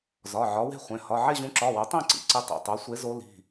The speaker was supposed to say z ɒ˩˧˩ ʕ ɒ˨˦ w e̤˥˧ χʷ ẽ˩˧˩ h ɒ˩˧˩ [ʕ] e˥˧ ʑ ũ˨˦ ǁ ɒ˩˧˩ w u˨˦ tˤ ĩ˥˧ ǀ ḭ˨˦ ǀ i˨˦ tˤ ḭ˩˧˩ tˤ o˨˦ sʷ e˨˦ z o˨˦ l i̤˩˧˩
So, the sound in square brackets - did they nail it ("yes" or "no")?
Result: yes